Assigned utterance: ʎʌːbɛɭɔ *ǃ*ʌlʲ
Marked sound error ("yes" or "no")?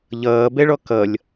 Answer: yes